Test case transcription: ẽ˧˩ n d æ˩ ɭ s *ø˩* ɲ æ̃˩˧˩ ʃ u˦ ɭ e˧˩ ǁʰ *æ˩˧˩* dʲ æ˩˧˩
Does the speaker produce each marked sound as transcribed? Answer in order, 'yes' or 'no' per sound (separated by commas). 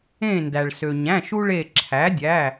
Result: yes, no